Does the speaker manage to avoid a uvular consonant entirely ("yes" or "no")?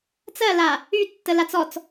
yes